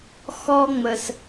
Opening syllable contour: high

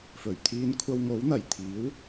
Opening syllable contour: low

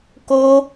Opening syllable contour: high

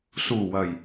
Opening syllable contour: low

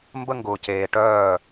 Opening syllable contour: high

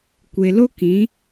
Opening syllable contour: low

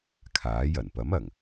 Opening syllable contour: rising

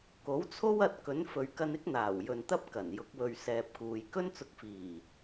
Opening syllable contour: rising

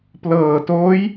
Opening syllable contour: low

